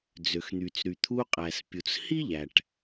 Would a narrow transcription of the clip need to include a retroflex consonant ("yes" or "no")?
yes